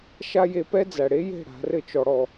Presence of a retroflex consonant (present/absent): present